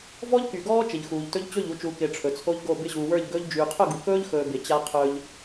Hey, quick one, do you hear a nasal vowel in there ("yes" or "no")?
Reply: no